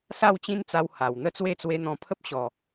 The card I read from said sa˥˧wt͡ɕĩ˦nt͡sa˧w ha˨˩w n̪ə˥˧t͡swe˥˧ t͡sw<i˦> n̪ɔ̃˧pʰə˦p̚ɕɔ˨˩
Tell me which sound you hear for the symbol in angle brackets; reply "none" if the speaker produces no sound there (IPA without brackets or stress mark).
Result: e˦